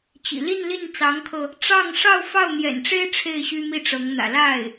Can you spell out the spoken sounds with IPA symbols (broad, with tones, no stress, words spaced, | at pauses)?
t͡ɕḭ˨˩ li˥˧nli˥˩n t͡sɑ˧˥ŋkʰɤ˧ | ʈ͡ʂɑ˥˧ŋ ʂɑ˥˧ʊ̯ fɑ˥˩ʊ̯n̪jɛ̰˨˩nʈ͡ʂe˥ɪ̯ ʈ͡ʂʰe˥˩ɪ̯ɕy˥mi˥˩ʈ͡ʂɤ˧˥ŋ n̪ä̰˨˩ la˥˩ɪ̯